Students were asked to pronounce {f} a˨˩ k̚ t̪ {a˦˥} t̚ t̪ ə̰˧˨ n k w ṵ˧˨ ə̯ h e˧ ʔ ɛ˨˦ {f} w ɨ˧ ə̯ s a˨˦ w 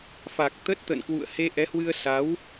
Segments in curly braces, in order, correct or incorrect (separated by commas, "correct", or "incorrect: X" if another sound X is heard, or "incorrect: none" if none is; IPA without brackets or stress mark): correct, incorrect: ə˦˥, incorrect: h